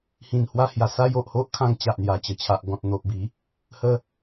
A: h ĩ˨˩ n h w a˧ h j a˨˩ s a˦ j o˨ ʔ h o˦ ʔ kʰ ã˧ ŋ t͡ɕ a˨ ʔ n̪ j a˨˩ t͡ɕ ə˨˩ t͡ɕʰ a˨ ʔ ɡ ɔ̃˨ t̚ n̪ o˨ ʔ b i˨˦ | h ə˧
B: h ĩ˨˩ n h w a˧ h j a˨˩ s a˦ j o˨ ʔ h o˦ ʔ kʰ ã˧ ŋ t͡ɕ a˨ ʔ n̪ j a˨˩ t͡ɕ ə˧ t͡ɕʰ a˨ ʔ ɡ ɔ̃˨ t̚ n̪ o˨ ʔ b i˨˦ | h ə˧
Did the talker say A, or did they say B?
A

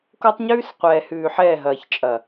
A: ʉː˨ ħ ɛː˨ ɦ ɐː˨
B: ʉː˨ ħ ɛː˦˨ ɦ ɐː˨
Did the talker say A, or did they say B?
B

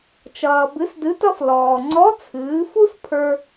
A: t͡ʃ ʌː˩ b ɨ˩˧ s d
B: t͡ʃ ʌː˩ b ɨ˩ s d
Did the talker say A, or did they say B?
A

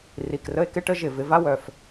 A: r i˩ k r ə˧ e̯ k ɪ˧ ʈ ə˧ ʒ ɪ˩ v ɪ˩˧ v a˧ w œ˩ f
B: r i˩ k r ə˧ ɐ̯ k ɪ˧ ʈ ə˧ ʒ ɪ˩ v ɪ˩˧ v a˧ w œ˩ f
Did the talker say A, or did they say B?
A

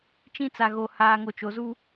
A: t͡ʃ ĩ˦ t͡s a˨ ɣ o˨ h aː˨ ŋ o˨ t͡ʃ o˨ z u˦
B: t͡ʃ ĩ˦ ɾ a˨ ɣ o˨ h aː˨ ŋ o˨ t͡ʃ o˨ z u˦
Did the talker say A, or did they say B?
A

